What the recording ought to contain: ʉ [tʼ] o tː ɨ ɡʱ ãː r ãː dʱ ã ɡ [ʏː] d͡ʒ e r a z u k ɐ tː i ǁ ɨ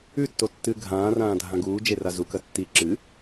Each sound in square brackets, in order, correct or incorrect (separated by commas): incorrect, incorrect